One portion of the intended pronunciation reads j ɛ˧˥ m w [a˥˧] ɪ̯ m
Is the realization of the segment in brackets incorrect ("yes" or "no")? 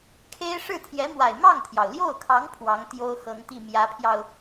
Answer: yes